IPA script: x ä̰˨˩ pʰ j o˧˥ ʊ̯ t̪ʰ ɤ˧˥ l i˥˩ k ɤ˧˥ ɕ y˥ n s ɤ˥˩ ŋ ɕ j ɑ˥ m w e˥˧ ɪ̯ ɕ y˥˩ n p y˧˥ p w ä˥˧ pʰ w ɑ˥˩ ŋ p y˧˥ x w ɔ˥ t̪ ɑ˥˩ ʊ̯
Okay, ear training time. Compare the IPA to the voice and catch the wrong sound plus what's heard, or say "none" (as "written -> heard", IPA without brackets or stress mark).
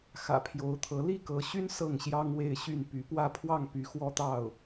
m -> ŋ